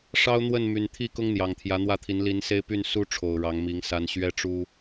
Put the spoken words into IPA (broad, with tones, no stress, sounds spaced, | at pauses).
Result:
ʂ ɑ˦ ʊ̯ n̪ w ə˥˨ n m y˨˩ n t̪ʰ i˥˨ k ʊ˦ ŋ n̪ j ɑ˨˩ ŋ t̪ʰ j ä˨˦ n̪ w ä˥˨ t̪ʰ i˨˦ n l i˨˦ n s e˦ ɪ̯ p y˥˨ n s u˦ ʈ͡ʂʰ o˨˩ ʊ̯ ɻ ɑ˨˦ ŋ m i˨˦ ŋ s a˦ n ɕ ɥ ɛ˦ ʈ͡ʂ u˦